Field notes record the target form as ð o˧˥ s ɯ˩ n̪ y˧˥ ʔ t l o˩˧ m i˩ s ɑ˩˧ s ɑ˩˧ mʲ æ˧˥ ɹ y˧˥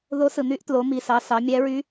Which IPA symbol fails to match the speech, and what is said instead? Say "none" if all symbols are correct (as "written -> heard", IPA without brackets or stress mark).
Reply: none